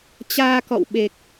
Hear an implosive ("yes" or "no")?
yes